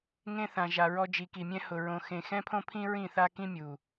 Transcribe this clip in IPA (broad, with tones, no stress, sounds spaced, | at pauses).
ŋ ẽ˧ θ ã˨ ʒ a˨ ɹ ɔ˧ d͡ʒ i˨ k i˨ mʲ ɛ̃˦ h ʊ˨ ɹ õ˨ x ẽ˨ x ɛ̃˦ pʰ õ˦ pʰ ĩ˦ ɹ ĩ˦˨ θ a˦ k ĩ˦ mʲ u˨